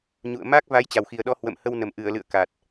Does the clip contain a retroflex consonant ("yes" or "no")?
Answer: no